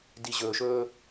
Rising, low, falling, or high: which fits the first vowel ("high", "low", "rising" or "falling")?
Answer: low